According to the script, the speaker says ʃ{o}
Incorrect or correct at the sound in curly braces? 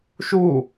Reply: incorrect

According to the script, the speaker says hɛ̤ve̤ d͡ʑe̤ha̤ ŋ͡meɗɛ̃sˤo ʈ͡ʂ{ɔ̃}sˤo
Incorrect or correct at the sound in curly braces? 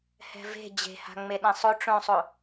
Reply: incorrect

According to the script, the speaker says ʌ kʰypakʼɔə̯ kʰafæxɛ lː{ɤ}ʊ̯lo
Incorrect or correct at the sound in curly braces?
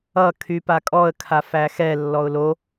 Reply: incorrect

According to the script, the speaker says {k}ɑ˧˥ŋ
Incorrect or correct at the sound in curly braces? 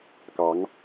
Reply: correct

